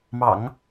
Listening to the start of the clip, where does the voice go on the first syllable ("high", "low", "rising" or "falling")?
low